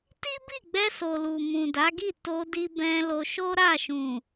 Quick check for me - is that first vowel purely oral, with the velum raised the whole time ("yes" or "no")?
yes